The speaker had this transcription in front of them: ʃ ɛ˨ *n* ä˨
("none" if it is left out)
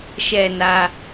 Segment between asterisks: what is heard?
n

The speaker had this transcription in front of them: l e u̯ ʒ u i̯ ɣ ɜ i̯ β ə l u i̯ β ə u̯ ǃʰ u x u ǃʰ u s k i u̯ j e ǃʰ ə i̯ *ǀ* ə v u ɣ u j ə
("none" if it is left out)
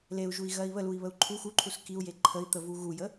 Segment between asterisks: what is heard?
t̪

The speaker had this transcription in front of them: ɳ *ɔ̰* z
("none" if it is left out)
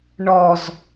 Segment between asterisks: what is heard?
ɔ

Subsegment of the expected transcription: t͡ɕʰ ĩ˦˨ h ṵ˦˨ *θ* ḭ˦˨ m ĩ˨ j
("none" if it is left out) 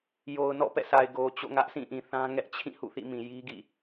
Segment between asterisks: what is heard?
θ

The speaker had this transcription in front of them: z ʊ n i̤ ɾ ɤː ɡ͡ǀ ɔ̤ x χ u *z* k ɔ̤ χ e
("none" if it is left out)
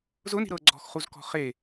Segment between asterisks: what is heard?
z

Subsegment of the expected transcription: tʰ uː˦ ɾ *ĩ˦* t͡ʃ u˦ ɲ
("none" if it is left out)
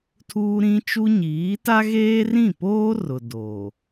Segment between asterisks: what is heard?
ĩ˦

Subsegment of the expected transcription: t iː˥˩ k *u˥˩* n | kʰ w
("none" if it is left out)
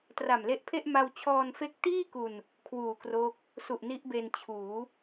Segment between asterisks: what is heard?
u˧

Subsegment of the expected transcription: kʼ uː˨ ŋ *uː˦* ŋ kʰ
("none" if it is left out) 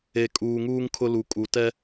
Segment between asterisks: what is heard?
uː˦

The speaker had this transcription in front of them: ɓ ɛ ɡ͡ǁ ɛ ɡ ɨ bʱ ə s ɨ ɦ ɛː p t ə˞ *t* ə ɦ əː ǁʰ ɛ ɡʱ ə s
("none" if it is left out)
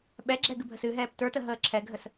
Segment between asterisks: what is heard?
t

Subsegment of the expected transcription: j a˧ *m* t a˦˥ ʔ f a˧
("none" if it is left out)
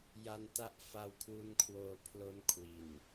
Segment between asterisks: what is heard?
n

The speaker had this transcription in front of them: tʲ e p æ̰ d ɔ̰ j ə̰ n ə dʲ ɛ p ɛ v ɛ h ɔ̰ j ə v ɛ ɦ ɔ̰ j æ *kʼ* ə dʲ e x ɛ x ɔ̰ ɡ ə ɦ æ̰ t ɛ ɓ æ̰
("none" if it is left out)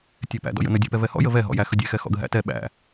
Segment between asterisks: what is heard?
x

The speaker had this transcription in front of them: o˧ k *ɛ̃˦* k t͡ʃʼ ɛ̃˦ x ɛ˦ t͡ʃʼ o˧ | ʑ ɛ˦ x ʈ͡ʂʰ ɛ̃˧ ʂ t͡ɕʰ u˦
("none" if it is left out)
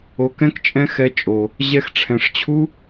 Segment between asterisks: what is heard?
ɛ̃˦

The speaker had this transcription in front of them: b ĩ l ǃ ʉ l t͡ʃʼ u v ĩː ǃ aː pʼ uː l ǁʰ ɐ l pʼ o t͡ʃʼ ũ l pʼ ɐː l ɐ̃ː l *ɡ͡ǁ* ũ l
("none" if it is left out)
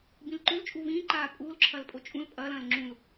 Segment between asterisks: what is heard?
ŋ͡ǁ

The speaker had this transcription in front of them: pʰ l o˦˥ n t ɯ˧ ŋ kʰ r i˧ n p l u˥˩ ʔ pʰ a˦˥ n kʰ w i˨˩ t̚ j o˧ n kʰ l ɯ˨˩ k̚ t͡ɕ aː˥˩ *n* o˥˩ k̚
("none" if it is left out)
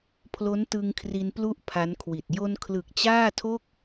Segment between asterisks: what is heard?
tʰ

